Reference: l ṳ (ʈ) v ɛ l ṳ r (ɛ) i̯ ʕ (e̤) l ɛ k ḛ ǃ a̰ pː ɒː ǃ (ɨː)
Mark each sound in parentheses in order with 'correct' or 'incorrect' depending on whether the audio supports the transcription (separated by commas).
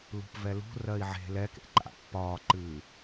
incorrect, incorrect, correct, correct